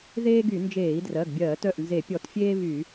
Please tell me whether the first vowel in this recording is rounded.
no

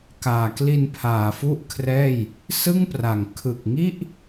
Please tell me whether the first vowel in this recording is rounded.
no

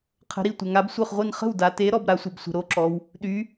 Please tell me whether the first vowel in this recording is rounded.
no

